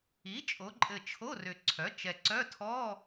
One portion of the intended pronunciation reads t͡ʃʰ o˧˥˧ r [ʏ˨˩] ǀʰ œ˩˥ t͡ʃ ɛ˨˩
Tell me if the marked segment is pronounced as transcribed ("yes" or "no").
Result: yes